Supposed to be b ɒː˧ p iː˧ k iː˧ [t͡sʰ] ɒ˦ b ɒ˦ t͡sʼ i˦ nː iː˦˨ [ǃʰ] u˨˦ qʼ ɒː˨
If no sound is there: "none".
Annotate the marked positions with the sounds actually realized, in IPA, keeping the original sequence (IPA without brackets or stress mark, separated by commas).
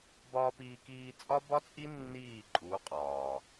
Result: t͡sʼ, ǃʼ